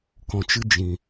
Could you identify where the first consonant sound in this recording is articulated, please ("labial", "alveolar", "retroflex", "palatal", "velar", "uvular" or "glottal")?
velar